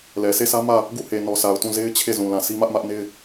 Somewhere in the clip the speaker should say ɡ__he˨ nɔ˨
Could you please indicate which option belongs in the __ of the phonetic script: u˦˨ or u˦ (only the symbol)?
u˦˨